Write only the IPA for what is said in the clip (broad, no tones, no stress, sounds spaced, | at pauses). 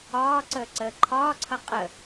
ɒː ǀ əː ǀ əː ǃʰ ɒː ǀʰ ʌ qʼ ə